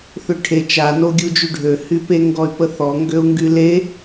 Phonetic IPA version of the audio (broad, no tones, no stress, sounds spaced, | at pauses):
θ ø ʈʰ e t͡ʃ a n o ɡʲ u d͡ʒ y ɖʱ ø h y p e ŋ ɡ ɔ y̯ p ə θ ɔ ŋ ɡ ø u̯ ŋ ɡ y l e